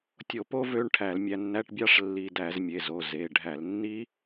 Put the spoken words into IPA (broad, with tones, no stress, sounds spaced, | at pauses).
tʲ o˧˩˧ p o˦˥ v ø˧˥˧ ɳ ʈʰ æ˧˩˧ l mʲ æ˧ nː æ˧˥˧ ʈ bʲ ɑ˦˥ ʂ lː i˧ d æ˧˩˧ z mʲ e˩˧˩ z o˩˧˩ z e˩˧˩ ɖʱ æ˧˩˧ l nː i˦˥